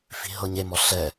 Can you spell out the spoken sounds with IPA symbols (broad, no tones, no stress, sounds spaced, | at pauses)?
f i̤ ɦ ɤ ɲ e m ɔ ɬ ɛ